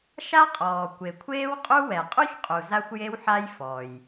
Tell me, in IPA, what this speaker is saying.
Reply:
ʃa˥qʼɔː˨ kʷe˨kʷʰeː˥wqʼu˥wɛ˨ qʼu˥çqʼu˨za˦xʷ je˦wħa˦j fɔ˨j

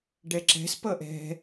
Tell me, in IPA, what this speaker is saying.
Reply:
ɖɛǁɛ̤s pʌʔɛ̤

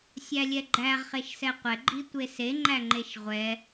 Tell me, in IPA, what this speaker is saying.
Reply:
sʲælʲɛɡ͡ǃæʁ χeʃsɛqʷɛ ɡ͡ǃitʷese ŋ͡ǃæŋ͡ǃeʃʁʷɛ

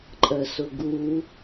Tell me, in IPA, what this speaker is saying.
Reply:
ǃʼɜsʊɡu

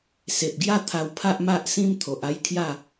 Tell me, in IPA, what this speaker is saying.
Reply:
se˨p̚ɡja˥˧ t̪ʰa˧w pʰa˦ʔma˦ʔsĩ˦m t̪ʰo˨ʔa˦jkʰja˥˧

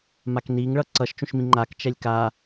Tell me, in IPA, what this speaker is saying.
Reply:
makniŋɭʌ ǀʌʃ t͡ʃũʃmĩŋ͡ǃak t͡ʃɛlʲka

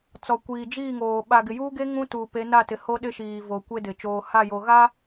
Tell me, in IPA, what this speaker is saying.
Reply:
t͡sɔ˨kʷiː˨d͡ʒiː˦˨ŋoː˨ ɓa˨ ɡɪ˨juː˦ɡe˦ ŋũ˦tuː˨pe˨˦ na˦˨tɪ˨ho˦ ɗɪ˦ʃiː˨vo˨ kʷe˦dɪ˨ t͡ʃoː˨ha˦˨jo˨ ɣa˦

